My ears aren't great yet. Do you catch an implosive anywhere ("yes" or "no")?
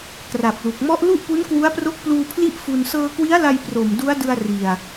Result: no